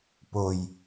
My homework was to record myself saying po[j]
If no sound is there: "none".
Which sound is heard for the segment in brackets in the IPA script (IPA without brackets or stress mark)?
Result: j